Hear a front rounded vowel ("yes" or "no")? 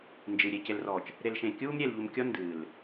no